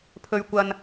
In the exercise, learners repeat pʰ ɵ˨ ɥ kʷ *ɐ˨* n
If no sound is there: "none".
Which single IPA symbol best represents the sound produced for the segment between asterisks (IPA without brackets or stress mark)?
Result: ɐ˨